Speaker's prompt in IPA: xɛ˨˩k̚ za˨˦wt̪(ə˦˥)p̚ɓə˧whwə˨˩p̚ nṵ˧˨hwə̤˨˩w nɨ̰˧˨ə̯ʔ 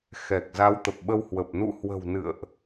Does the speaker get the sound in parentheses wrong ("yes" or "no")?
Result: yes